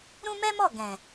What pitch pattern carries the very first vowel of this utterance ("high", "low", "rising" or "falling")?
high